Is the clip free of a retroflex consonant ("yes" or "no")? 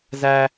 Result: yes